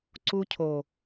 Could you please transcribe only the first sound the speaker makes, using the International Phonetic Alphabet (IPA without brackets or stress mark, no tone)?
ǀ